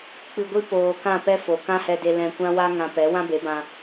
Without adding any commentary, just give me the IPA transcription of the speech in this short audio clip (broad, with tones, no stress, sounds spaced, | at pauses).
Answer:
k͡p ɨ˧ ɡʷ i˦ p oː˧ k ã˦˨ p ɛ˦ f o˨ k ã˦ h ɛ˧ d e˧ l ɛ̃˧ kʷ ã˦ w a˦ ŋ ã˧ p ɛ˨˦ w ã˦ b e˨˦ b ã˧